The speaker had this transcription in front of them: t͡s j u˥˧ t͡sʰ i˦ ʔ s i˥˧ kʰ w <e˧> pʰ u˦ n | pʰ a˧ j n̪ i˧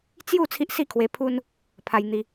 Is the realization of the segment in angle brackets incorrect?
no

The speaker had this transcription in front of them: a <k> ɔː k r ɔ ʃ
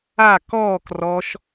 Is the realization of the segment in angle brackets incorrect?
no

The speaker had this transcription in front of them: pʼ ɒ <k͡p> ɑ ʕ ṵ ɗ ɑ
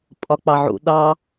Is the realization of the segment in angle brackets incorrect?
no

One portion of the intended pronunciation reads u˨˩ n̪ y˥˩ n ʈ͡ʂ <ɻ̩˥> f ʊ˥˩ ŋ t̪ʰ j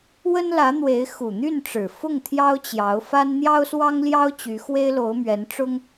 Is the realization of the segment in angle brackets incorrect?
yes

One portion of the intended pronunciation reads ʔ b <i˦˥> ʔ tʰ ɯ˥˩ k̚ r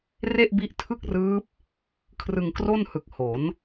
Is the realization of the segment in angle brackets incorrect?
no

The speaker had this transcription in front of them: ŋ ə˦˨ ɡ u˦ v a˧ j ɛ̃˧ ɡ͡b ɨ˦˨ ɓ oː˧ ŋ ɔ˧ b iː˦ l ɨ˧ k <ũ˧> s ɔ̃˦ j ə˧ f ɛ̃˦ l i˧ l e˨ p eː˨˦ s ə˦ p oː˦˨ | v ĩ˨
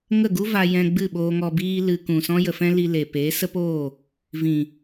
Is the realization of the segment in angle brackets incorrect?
yes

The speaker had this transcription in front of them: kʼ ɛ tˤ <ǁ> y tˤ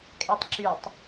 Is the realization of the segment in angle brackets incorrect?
no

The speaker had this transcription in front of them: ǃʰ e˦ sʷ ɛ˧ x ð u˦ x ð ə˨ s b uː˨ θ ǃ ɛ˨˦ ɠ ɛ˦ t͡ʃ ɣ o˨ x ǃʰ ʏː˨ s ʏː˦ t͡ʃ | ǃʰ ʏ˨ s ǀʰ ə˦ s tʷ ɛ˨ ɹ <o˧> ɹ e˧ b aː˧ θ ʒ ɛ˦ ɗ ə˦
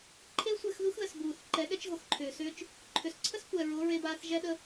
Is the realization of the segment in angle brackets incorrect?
yes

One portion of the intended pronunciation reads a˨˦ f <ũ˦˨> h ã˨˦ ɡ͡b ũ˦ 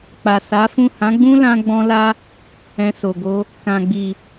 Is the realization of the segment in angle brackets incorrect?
no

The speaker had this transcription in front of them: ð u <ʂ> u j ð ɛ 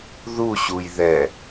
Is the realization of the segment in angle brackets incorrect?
yes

